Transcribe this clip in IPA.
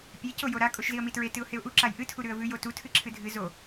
pʲeco joɾa kʼoʃziə̯mitɹe tɨʊ̯heʊ̯ʔu ǁajʔɨtʰu ɾʉə̯vʉj otu tʰɨǁʰɨdʱɨ zo

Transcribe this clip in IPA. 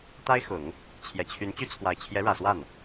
t̪a˥ɪ̯ xʊ˨˩˦ŋ | t͡ɕʰjɛ˨˩t͡ɕʰy˧˥nt͡ɕy˥ t͡sʰwa˨˩ɪ̯t͡ɕʰjɛ˧˥ɻä˨˩swa˥˩n

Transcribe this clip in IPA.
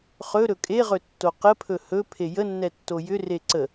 χɵ ɾɵkʼeʁɵ tːoqəpʰɵ hɵ pʰejənːɛ tːojʏre ǀə

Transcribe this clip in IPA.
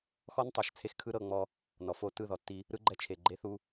xɔ˦ntˤɤ˨ʃ t͡sʰe˦xkʰɯ˦ɾɤ˦˨ŋ͡mɔ˦ | nɔ˨fo˦˨ tɯ˦˨ðɔ˨tːi˦ | ɾɯ˦ɡ͡ǃɛ˦t͡ʃʰe˨ ɡ͡ǃe˦θu˦

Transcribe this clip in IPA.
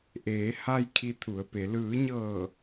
ʔeː˩˧ha˧j kʰi˧t̪ʰu˩˧ə̯pe˩˧ lɯː˩˧ɲɤː˧˩

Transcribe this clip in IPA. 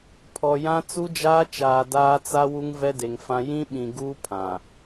pʰɔ˨ jã˦ t͡su˦d͡ʒaː˦t͡ʃaː˨ daː˦t͡sa˦ wu˦ŋvɛ˦de˨ŋfã˦ jĩ˦ɓĩ˨ɡuː˦ pʰã˨

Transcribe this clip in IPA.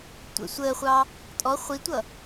tʷə̰ sʷəːχʷɑː | tʼɔ χʷitʷʌː

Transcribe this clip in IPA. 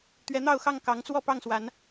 t̪ɥɛ˨˦n̪ɑ˥˨ʊ̯xɑ˥˨ŋ kɑ˨˦ŋt͡swɔ˥˨ pɑ˥˨ŋswa˨˦n

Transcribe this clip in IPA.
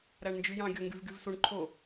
ɾæɳnd͡ʒyjɑ̃ ɡʲoŋɡyvɡyvsuɳ ǃʰo

